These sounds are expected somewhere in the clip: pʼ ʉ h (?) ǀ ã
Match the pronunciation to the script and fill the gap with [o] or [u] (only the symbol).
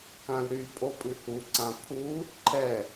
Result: u